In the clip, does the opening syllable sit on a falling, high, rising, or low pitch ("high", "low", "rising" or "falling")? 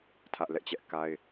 high